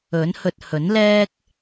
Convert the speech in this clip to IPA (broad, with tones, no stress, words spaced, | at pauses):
ɵ˨˥nhɵ˧t̚ hɵ˨˥nlɛː˥k̚